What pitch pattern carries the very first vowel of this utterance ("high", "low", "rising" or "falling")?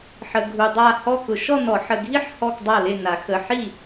low